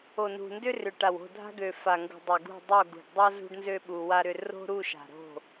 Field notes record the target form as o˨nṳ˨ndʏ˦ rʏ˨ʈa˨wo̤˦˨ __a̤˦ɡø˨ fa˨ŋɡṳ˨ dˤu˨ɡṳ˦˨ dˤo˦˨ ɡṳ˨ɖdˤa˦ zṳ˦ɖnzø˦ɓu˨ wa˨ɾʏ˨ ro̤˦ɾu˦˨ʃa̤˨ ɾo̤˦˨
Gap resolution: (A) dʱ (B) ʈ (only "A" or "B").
A